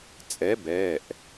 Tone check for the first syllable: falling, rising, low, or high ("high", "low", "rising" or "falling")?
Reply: rising